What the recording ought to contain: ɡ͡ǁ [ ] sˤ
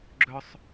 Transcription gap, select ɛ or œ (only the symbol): œ